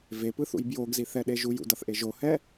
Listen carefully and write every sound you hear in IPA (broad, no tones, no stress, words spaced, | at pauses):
vepɯθṵj bjoɡziθɛɗe ʒujṵdʌθʔe ʒohɛ